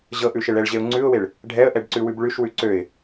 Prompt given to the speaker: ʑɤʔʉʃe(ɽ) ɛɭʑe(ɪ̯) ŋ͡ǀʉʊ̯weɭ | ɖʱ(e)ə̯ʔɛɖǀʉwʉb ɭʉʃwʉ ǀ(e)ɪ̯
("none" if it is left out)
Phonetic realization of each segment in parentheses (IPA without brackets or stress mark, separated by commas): ɭ, ʊ̯, ɛ, ø